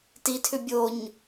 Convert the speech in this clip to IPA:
titʰʏ bʲoɲ

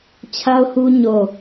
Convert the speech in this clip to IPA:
t͡ɕʰa˦ʊ̯hu˦ ɲo˦˨

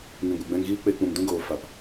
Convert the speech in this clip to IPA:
ŋĩ˨ɡʷɛ˨ɡ͡bɛ̃˧ŋɣiː˦ k͡pe˧k͡pũ˨mdũ˦ɡoː˨ fa˨p

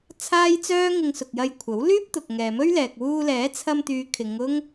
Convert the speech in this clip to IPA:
t͡sʰaː˥jt͡sœː˥ ŋɪ˧ŋsʊ˨k̚jɐ˧jkʷʰɐ˨˥w lyː˥p̚ t̪ʊ˨k̚ŋɛː˨mɵ˥ɥlɛː˨k̚ wuː˧lɛː˨˥t͡sʰɐ˧m t̪yː˨˧ kʰɪ˨˧ŋʊ˥ŋ

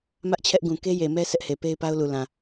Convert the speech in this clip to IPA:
mä˦ʔt͡ɕʰɛ˦ʔ ɡũ˨ke˦je˨mɛ˦ sʰɛ˦ʔhe˨ pe˦ɪ̯pa˦ʊ̯lu˨lã˨

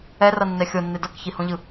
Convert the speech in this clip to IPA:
ɛrʌnːɛ xʲonːe dʌkçihõʎɯ

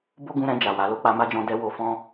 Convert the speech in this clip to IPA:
bo˦ɡũ˧ɾɛ̃˧ d͡ʒa˨wa˨˦ lo˦k͡pa˧ma˦d͡ʒɔ̃˧ dɛ˧ wo˧ fɔ̃˦

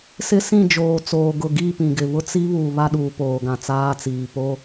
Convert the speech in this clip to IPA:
sɪ˦sĩ˦˨d͡ʒoː˨t͡soː˨ ɡʊ˨ɡi˦˨ pĩ˨ɡɪ˨βʊ˦ t͡si˦βu˨ βa˦ɗuː˨ poː˨ɡã˨t͡saː˦t͡siː˨ po˦

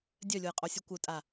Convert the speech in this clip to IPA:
dʲœlʲojqʼosʲu kʷœtʼa

